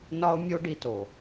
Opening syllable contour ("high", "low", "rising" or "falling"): high